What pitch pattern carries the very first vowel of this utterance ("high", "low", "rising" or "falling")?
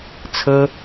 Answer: high